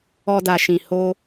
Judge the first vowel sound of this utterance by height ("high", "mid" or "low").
mid